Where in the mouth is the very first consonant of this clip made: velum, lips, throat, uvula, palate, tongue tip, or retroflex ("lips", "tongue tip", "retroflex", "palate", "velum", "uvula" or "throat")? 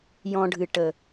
palate